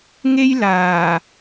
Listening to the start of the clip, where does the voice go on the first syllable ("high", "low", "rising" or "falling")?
high